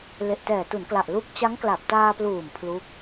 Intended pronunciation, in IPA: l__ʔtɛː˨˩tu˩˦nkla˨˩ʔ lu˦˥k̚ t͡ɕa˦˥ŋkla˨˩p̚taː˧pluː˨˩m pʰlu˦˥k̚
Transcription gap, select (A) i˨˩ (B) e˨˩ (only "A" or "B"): B